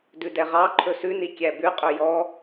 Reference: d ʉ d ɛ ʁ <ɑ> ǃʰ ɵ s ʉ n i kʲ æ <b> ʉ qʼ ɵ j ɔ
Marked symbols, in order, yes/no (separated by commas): yes, yes